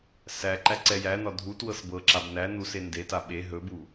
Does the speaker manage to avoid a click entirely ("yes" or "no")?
no